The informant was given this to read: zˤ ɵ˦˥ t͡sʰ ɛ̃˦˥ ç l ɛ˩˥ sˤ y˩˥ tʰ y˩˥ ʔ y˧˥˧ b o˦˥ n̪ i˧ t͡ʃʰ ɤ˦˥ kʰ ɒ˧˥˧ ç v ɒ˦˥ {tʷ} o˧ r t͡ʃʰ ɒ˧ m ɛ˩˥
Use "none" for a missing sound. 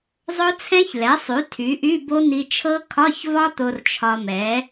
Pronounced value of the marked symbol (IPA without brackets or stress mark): t̪